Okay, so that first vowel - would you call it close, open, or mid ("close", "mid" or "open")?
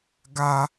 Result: open